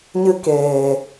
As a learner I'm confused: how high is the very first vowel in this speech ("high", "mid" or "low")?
high